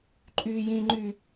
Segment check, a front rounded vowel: present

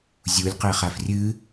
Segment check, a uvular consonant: present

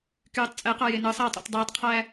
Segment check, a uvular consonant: present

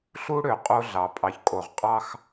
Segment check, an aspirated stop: absent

